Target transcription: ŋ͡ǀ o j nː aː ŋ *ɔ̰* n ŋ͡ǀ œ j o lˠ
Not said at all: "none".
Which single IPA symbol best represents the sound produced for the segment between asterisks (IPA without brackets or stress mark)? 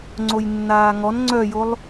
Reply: ɔ